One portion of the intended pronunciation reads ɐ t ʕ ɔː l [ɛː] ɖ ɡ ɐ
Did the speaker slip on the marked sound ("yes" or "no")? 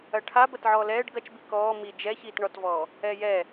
no